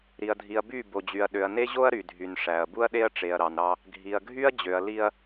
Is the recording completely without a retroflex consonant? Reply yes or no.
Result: no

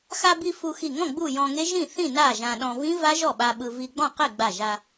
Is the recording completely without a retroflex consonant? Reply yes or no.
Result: yes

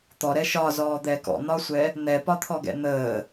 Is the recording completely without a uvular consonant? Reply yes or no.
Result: yes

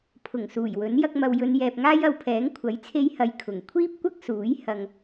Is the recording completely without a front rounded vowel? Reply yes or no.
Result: yes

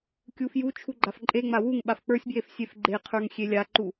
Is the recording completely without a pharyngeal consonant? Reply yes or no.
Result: yes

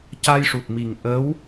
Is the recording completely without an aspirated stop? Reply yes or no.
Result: yes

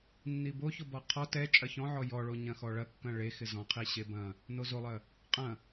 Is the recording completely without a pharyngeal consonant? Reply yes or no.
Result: no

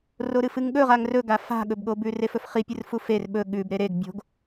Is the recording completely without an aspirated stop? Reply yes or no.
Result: yes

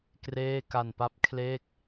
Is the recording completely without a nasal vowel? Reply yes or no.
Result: yes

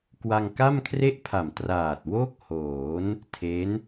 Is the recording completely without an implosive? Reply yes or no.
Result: yes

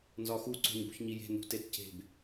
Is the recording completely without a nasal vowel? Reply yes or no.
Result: yes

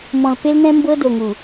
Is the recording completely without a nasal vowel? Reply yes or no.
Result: no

